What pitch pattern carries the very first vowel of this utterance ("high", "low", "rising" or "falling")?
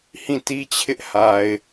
falling